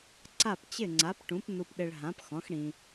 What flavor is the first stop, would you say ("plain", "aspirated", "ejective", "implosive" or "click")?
click